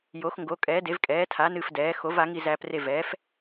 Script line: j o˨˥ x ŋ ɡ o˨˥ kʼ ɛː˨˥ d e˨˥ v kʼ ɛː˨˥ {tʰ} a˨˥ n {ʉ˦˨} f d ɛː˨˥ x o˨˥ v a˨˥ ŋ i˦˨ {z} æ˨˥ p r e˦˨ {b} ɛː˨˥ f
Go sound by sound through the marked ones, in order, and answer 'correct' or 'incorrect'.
correct, incorrect: ɨ˦˨, correct, incorrect: v

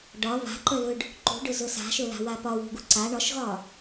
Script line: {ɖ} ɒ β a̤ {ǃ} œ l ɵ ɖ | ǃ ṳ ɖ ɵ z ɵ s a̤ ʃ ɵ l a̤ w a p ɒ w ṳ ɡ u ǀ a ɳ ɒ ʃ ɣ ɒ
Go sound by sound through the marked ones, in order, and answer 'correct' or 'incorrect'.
correct, correct

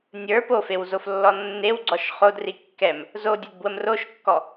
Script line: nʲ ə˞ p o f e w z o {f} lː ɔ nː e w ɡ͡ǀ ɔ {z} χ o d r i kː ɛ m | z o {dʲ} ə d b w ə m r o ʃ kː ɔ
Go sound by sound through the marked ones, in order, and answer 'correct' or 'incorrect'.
correct, incorrect: ʃ, correct

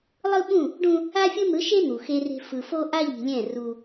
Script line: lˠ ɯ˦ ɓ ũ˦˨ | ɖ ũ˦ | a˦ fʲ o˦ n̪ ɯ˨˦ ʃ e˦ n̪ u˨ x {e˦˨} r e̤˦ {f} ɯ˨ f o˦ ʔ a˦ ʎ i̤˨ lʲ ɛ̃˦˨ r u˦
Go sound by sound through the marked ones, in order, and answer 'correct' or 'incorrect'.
incorrect: e˦, correct

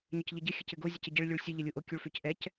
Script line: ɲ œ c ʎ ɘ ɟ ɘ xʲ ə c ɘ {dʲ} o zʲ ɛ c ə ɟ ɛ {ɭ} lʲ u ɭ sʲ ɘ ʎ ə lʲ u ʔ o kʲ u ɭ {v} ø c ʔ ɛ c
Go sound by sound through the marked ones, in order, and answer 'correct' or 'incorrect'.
incorrect: ɡ, correct, incorrect: f

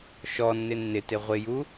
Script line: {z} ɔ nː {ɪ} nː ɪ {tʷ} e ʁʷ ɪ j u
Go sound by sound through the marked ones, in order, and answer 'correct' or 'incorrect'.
incorrect: ʃ, correct, incorrect: t

